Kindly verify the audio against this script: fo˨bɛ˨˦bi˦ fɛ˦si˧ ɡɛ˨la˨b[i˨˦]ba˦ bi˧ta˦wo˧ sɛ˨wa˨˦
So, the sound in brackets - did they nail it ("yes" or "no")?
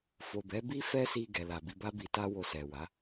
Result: yes